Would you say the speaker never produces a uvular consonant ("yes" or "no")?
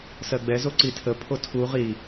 no